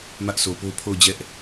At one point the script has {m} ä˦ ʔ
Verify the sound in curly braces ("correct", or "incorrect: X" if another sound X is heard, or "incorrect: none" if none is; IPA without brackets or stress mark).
correct